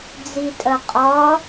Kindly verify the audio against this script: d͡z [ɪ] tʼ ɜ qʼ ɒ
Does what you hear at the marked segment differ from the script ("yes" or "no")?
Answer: yes